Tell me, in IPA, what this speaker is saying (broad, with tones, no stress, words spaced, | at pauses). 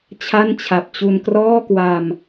t͡ɕʰa˥˩nt͡ɕʰa˨˩p̚ t͡ɕu˧nkrɔː˥˩kwa˧m